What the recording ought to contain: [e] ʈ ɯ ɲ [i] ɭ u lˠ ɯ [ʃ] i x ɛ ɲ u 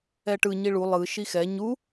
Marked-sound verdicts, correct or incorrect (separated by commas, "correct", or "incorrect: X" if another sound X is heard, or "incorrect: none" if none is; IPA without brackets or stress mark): incorrect: ɛ, correct, correct